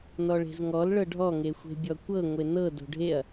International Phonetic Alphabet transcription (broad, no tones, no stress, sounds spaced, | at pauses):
n ɔ ɭ e̤ z ŋ ɔ l ɭ ɤ ɖʱ ɔ ŋ e xʷ e̤ bʲ ɔ kʷ ɤ ŋʷ e n ɤ d o̤ ɖʱ e ɐ̯